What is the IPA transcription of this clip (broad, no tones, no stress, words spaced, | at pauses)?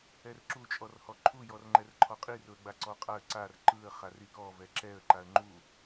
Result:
ɛrǁu t͡ʃʼɔrhɔǃʰu jɔrŋ͡ǃɛrǃʰɔqʼir ʊə̯ɡ͡baǀɔqʼaə̯ ǀar ǃɯə̯ χarikɔ vɛǁɛə̯ ǃaə̯ŋ͡ǃu